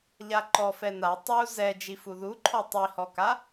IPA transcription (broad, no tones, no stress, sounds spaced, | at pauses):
ʎ a ǃ ɔ f ɛ n a tˤ u z ɛ d͡ʒ i f u ð u ǃʰ ɔ tˤ i h ɔ k a